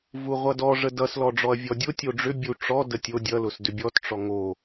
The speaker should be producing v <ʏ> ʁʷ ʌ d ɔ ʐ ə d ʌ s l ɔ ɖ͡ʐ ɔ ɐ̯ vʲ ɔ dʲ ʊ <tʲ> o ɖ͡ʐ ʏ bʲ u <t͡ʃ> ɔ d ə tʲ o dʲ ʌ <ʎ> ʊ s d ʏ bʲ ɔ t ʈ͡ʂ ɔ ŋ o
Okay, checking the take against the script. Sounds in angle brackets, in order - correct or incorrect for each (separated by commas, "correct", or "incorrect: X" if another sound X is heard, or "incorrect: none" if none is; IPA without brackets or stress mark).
incorrect: u, correct, incorrect: ʈ͡ʂ, incorrect: l